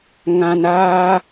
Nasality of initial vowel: nasal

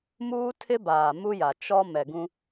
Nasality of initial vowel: oral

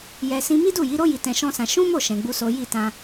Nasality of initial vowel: oral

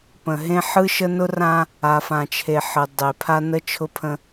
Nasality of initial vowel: nasal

